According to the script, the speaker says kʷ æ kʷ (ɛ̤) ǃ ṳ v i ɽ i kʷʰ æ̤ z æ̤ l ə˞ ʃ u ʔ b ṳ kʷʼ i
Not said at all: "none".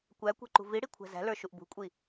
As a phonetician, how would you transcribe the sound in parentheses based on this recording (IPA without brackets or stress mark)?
ɛ̤